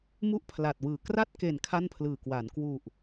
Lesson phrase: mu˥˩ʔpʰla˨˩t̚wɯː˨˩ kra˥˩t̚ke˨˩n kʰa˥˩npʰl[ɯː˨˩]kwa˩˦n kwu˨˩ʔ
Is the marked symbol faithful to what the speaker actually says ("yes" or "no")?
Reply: yes